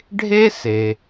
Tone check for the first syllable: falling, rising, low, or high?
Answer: high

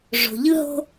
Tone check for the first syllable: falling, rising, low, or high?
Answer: low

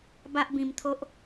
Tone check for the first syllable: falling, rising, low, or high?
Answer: high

